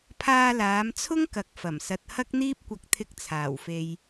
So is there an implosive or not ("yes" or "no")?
no